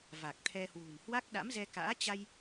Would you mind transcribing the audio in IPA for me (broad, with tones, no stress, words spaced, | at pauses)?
va˨˩k̚t̪ʰɛ˧ hwṳ˨˩n hwa˦˥k̚ɗa̰˧˥mzɛ˧ka̰ː˧˥ t͡ɕa˧j